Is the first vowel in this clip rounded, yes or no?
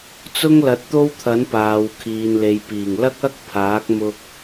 yes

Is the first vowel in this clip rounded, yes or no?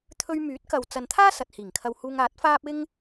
yes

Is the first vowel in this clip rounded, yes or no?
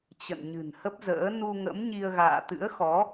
no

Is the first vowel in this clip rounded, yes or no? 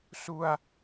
yes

